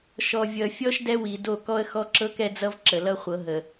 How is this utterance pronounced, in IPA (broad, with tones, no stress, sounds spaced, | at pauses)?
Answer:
ʃ ɔ˨ vʲ ʌ˨ fʲ ɔ˦ ʃ d ɛ˦ w i˨ d o˦˨ k ɔ˦ ə̯ x ɔ˦ ǁ ɤ˦ k ɛ˦ d͡z ʌ˦ v ǁ ə˨ l ʌ˦ χʷ ɤ˨˦ ɦ ə˨